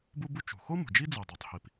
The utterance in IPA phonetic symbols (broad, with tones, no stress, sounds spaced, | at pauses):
b u˥ b u˥ t͡ʃ ṳ˩ x o˥ m ṳ˩ d͡ʒ i˥ d͡z i˩ dˤ o˩ tˤ h i˩ p